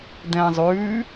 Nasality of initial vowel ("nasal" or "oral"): nasal